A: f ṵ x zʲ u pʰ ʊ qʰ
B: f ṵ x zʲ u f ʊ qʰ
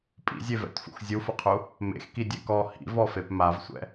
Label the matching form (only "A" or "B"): B